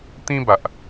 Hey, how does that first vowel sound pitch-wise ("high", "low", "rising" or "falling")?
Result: high